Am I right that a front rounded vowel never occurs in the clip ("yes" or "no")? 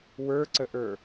yes